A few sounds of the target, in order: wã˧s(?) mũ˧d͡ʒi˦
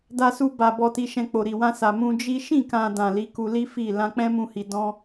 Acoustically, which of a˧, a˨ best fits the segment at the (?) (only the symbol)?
a˨